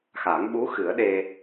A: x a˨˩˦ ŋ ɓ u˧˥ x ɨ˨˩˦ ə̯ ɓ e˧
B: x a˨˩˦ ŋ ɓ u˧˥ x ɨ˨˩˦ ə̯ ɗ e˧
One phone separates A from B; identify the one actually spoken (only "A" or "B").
B